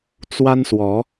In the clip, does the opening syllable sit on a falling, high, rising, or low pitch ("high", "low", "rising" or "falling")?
high